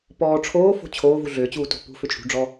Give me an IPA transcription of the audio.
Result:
p ɔː ʈ͡ʂʰ oː f o̤ t͡ɕʰ oː v u ɮ ʏː t͡ɕ uː t o̤ p ṳ f ʏ t͡ʃʼ ṳ ɖ͡ʐ ɔ

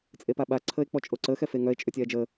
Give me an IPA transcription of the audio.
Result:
t͡sʼ e p a ɓ a ǀʰ əː e̯ k͡p ɔ t͡ʃʼ o ǀ əː x ɛ f e ŋ œ e̯ t͡ʃʼ ø tʲ ɛː d͡ʒ əː

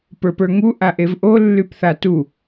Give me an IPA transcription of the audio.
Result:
p ə˞ p ə˞ ŋ u ʔ a ʔ e v ʔ o lː y p θ a t u

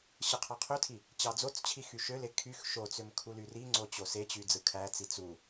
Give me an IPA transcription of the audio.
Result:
ɕ ɯ qʰ ɑ qʰ ø tʰ i | t͡ɕ ɑ d͡z o t͡s t͡ɕʰ i x y ʃ ø l e kʰ y x ʃ o t͡s ø m kʰ u l y r i ŋ͡ǀ o t͡ɕ o s e t͡ɕ y d͡z ɯ kʰ æ t͡s i t͡s u

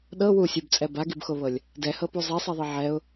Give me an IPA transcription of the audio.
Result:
ɗ ɤ w u sʲ u b t͡sʼ ɛ b a ɡ i b x o β ɤ lʲ | d ɛ h ɤ p u zˤ i sˤ i ðˤ i ʕ ɛ ʊ̯

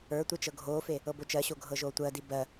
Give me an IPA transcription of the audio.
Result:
ə˞ tʷ e t͡ʃ ɤ ɡʱ oː f e | ɤ b o t͡ʃ ɜ ɕ o ɡʱ ɤ ʒ oː tʷ ɜ d i b ɜ

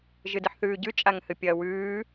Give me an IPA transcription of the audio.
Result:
ʒ ɨ d ɨ ħ θ ʉː ɟ ʉ t͡ʃʼ a ŋ h ɨ pʲ ɐː w ʉː

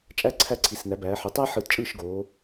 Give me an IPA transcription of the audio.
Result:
t͡ʃʼ æ˥ ǀʰ æ˥˩ ǀʰ i˩˧ s n æ˩˧ b æː˩˧ ħ y˩˧ tˤ æ˥ ħ ɯ˧˩˧ t t͡ʃʼ ɯː˥˩ ʃ ɡ oː˩˧

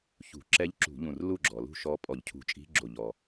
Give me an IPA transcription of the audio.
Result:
ç ṳ˧˩˧ ǁ ɛ˧˥ ʎ ǁ ṳ˧˩˧ ʎ ũ˧˩ r l u˥˩ ɡ͡ǁ ɔ˩ l ṳ˥˩ ʃ ɔ˧˥ pʼ ɔ˧˩˧ ʎ cʰ ṳ˧˩˧ t͡ʃʼ i̤˧˥ ɡ͡ǁ o˧˩ ʎ ɔ˩

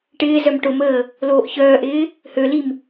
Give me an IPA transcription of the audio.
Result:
ʈ ɪː z œ m ʈ ʊ m əː | l oː ʔ ç œː ʔ ɪː | h ø l i m

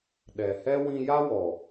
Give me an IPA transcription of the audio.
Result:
ɗ ɛ˨ h ɛ˦ w ĩ˧ j a˦ w ɔ˨

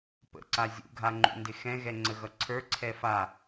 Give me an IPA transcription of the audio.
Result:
p ə̰ ǀ a zʲ ṵ ɡʱ a ŋ͡ǃ ṵ n d ɪ x ɛ̃ ɣ ɛ ŋ͡ǀ ə ɣ ʌ ǀʰ ə˞ ǀʰ ɛ f a

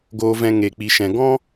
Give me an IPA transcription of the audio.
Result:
ɡ oː˦ v ɛ̃˦ ŋ e˧ k͡p i˧ ʃ ɛ̃˧ ɡ ɔ̃˦

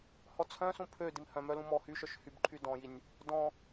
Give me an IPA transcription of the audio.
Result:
h ɔ t͡sʰ œ̃ s ũ pʰ ø d i m h œ̃ m œ l ũ m ɔ h y ʃ œ ʃ h y b ǃʰ y d ɔ̃ j i nʲ | d ɔ̃

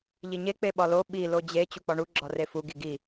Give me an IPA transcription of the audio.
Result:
ʎ i ɲ e k͡p e ɓ ɒ l o ɓ i l o d͡ʑ e t͡ɕ u k͡p ɒ ɳ u ɡ͡ǁ ɒ r e f u ɡ i ɡ i

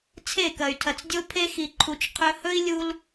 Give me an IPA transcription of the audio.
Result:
t͡sʰ e˦˨ k ɐ˨ y̯ tʰ ɐ˨ t͡s dʲ o˦ pʰ e˦ x i˨ ǃʰ u˨ t͡ʃ qʰ ɵ˧ h ɵ˦ i̯ lʲ u˧ l

